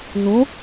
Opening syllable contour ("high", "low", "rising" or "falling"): rising